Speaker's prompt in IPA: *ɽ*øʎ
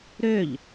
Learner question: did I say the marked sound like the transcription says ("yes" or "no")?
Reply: no